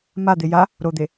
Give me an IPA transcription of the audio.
m a d̪ e j a | ɾ o d̪ e

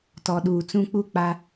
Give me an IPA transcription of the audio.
t ɔ˨ ɗ uː˨ t͡s ũ˦ k͡p u˦˨ k͡p a˦

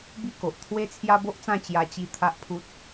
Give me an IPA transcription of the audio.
b i˦ k o˨ ʔ t̪ʰ w e˦ t͡sʰ j a˦ b o˦ ʔ t͡s ã˥˧ t͡ɕ j a˧ t͡ɕ i˧ t̪ʰ a˦ ʔ pʰ u˦ t̚

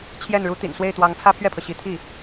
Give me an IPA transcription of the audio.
t͡ɕʰ j ɛ˥˩ n ɻ u˥ t̪ ḭ˨˩ n s w e˥˩ ɪ̯ t̪ w ɑ˧˥ ŋ t͡sʰ ä˥ pʰ ɥ ɛ˥˩ pʰ ɤ˩ ɕ i˧˥ t̪ʰ i˥˩

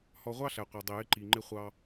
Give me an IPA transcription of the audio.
h ɔ˧ ʁʷ ɑ˦ ɬ æ˨ qʷ ɑ˨ dˤ i˨ j ɪ˧ ǃ i˨ ŋ͡ǃ ɪ˧ χʷ ɑ˧

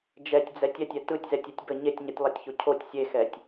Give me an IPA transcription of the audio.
d͡ʒ ɛ tʲ d͡z ɛ tʲ ɛ tʲ ɛ t ɯ tʲ z ɛ tʲ ɛ tʲ b ə ɲ e tʲ ɲ ɯ tʲ lˠ a tʲ ç o cʰ o tʲ sʲ e x ɛ tʲ

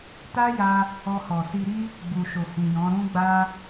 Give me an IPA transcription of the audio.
t a˦ j a˧ | ɔ˧ h ɔ˨ s i˧ ɾ i˦ | ɡ͡b u˨ ʃ o˨ h ĩ˨ j ɔ̃˨˦ ɾ ũ˦ ɡ͡b a˦

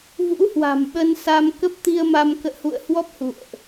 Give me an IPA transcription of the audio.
v ṵ˧˥ h w a̤˨˩ m ɓ ə˧ n s a˧ m k ə˦˥ p̚ t̪ i˧ ə̯ m a˧ m k ə̰ː˧˨ h ṵ˧˨ ə̯ h w ɔ˦˥ p̚ h ṵ˧˨ ə̯ ʔ

